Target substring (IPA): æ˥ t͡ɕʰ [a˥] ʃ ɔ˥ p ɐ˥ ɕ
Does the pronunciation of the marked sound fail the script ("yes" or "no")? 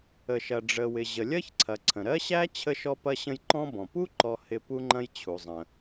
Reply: yes